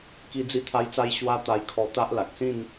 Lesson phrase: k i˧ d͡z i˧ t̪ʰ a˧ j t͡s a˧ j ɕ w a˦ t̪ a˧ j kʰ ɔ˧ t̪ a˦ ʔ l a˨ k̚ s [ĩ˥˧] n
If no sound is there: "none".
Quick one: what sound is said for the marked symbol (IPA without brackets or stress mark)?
ĩ˥˧